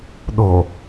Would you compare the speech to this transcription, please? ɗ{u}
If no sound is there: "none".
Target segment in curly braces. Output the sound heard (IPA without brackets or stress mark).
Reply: o